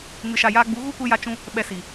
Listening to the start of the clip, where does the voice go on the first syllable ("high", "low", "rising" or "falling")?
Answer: low